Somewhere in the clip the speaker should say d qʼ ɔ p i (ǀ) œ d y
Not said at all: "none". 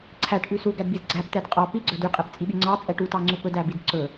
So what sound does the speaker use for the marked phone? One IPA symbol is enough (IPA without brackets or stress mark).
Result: ɡ͡ǀ